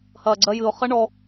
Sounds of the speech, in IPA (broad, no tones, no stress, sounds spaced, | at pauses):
h ɐː ɡ͡ǀ ɜ j ɨ ʊ̯ χ ɐ ɳ ɔ